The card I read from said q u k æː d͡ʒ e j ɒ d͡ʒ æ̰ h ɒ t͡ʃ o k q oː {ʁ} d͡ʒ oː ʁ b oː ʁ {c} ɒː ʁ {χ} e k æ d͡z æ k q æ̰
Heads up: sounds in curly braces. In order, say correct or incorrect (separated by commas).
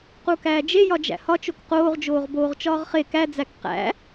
correct, incorrect, correct